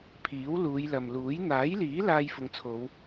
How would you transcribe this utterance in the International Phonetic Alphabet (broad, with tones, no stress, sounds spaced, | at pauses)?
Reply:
pʰ iː˨˥ w l uː˨˧ j l ɐ˨ m l uː˨˥ j n̪ aː˨˥ j l iː˨˥ l aː˧ j f ʊ˨ ŋ t͡sʰ o˨˧ w